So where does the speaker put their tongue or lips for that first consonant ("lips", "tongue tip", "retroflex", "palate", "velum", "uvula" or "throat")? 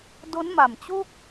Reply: tongue tip